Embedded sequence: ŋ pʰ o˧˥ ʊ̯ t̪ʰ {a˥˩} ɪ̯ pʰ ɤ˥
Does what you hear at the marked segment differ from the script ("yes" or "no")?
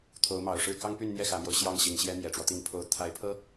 yes